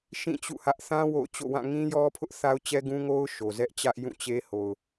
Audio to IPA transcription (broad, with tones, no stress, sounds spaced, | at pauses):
ʃ ĩ˦˨ t͡ɕ ṵ˦˨ h ä˦ ʔ θ ã˦ w o̰˦˨ ʊ̯ t͡ɕ o̰˦˨ w ã˦˨ ŋ ĩ˦ j ɔ˦ pʰ ʊ˦ ʔ θ a˦ ʊ̯ t͡ɕ ɛ˦ ɡ ũ˦ ŋ o˦ ʊ̯ ʃ o˨ z ɛ˦ ʔ t͡ɕ ä˦ ʔ j ũ˦˨ t͡ɕ e˦ h o˨ ʊ̯